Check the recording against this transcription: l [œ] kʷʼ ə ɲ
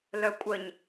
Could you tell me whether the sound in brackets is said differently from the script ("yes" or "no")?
no